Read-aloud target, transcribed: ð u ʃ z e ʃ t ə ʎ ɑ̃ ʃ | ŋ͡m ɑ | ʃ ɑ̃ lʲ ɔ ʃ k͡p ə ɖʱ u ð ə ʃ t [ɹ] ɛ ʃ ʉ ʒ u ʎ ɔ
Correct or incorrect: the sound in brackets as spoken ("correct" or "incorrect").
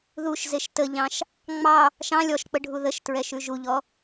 correct